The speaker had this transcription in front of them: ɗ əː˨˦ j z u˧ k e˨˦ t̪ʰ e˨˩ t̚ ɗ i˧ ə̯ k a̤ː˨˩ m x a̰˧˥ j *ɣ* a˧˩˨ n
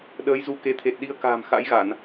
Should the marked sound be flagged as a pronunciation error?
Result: no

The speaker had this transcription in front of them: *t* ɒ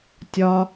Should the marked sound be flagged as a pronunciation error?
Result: yes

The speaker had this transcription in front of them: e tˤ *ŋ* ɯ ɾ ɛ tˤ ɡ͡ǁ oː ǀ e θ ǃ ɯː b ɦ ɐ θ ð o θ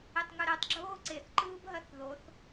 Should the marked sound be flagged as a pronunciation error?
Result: no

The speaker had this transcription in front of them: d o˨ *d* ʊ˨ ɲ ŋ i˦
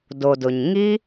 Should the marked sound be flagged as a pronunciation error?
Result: no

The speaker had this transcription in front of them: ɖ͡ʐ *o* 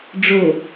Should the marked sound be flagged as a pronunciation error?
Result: no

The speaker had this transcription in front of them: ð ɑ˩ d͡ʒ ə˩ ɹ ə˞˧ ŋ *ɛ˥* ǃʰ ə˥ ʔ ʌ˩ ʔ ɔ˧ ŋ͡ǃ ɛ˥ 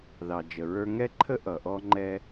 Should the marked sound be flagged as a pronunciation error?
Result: no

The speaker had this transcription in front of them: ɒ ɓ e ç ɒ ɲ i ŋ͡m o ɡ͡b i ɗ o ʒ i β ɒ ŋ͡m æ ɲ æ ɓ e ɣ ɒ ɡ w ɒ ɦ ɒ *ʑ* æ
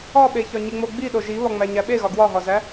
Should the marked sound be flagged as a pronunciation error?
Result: yes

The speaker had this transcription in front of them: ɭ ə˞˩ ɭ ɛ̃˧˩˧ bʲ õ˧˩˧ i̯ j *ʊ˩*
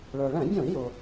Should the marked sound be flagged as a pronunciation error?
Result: no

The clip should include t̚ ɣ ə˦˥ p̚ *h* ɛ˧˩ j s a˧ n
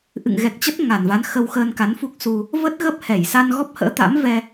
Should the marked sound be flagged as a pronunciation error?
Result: no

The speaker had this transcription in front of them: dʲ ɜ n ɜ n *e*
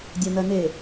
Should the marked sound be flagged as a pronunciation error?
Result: no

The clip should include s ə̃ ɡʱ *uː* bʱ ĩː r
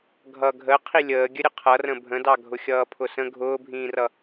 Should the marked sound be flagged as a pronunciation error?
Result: yes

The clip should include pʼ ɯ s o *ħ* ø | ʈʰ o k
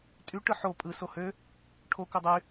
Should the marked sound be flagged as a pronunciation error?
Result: yes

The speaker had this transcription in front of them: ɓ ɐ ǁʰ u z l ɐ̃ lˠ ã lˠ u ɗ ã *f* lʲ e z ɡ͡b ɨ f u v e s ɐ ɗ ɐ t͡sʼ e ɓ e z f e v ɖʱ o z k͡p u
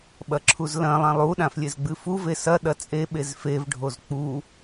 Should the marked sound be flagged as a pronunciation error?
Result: no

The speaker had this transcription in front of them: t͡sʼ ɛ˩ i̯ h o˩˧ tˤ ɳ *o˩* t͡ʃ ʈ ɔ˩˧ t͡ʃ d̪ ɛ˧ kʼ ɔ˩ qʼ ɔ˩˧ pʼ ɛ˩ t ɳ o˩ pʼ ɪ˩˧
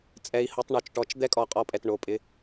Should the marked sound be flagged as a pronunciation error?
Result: no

